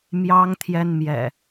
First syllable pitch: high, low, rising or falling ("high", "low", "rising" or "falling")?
high